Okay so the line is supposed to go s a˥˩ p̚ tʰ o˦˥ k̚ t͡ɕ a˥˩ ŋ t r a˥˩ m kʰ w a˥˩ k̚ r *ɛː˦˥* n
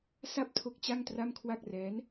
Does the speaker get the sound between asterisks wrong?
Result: no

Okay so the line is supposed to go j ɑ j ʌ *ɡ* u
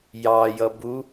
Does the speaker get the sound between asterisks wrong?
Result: yes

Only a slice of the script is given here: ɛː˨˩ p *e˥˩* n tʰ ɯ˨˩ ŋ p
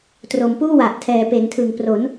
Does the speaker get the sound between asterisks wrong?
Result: yes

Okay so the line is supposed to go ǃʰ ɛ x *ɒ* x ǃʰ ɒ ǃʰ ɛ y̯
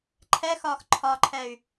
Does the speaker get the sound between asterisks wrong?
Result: yes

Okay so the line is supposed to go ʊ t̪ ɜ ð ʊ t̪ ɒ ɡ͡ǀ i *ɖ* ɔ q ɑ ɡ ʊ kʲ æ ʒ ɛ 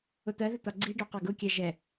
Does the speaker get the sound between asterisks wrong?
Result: no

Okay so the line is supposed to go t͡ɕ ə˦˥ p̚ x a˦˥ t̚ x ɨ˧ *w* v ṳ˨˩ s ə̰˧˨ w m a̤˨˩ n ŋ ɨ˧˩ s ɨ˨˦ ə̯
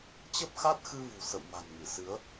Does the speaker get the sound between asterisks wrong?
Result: yes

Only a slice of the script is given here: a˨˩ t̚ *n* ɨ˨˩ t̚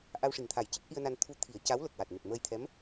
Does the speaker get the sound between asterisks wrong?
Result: no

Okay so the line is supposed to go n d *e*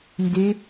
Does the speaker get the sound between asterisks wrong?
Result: yes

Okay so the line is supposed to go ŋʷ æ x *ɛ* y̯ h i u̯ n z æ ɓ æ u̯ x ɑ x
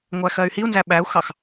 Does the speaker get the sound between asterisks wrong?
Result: yes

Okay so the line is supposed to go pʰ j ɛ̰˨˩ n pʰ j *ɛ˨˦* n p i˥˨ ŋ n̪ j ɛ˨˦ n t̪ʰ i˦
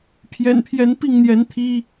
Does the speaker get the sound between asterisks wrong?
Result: no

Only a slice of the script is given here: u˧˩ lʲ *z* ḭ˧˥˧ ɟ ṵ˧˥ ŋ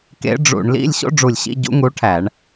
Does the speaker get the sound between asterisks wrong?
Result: yes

